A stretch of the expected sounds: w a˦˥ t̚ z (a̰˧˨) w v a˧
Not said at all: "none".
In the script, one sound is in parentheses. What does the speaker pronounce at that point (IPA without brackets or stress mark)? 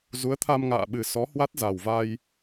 a˨˩